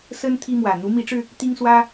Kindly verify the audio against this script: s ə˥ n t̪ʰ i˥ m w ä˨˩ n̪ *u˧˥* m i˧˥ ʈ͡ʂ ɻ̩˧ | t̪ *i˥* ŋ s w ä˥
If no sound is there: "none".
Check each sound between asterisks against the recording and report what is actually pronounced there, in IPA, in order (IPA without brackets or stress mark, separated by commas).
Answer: u˧˥, i˥